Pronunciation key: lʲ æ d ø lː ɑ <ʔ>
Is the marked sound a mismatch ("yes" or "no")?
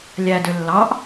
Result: no